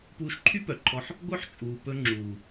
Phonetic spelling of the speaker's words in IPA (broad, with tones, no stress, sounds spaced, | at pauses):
p uː˧ ʃ ǃʰ y˦ p œ˨ ǃʰ ɔ˧ ħ | ɡʷ œ˦ ħ t͡ʃʼ uː˨ p ɵ˧ ŋ͡ǁ uː˨